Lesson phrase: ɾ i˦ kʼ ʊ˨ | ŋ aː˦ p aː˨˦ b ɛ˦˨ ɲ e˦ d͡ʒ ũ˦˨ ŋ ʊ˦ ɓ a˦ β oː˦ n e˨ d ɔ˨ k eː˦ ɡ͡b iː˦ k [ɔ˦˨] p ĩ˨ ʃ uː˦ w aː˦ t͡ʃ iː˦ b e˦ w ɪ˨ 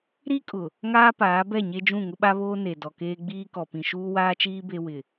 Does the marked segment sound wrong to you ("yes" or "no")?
yes